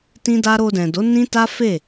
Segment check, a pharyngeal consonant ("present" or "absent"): absent